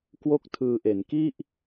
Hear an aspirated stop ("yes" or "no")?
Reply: yes